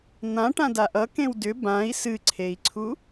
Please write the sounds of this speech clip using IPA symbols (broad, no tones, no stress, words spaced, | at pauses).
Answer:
n̪ã ʈãdaʔʌ kẽwdʏ bãi̯ sɨǀʰei̯ǀʰu